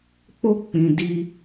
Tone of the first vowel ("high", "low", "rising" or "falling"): high